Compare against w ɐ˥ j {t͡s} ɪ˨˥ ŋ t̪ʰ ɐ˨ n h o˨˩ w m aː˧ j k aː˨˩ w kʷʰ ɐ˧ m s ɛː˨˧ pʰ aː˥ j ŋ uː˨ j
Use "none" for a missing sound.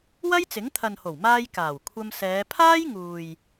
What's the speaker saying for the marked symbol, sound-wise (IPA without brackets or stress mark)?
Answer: t͡s